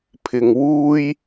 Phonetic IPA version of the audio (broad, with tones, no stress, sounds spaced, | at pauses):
pʰ ɪ˨˩ ŋ w uː˥ j